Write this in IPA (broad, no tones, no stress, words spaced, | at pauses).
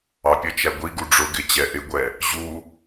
ɑpʲət͡ʃæ ɡʷiɡu ɖ͡ʐʊɡɪ t͡ɕɛʔɪɡʷɛ | ʑu